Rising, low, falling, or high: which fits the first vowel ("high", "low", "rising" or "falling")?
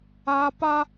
high